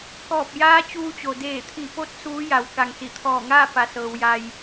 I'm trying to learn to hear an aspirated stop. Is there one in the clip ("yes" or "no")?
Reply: yes